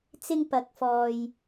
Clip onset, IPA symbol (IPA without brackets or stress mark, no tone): t͡s